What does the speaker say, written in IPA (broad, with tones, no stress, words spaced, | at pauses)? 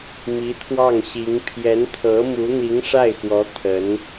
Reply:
mi˧˥t̪ʰwɑ˥˩ŋ ɕi˧˥ŋ pʰjɛ˧˥nt̪ʰɤ˧˥mu˧˥ n̪i˧˥ŋʂa˥˩ɪ̯xwɔ˧˥ t̪ʰə˧˥n